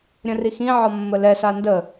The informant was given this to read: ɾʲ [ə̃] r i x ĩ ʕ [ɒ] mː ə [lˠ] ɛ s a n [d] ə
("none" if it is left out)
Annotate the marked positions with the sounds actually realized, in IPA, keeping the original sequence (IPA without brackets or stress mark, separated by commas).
ə̃, ɒ, l, d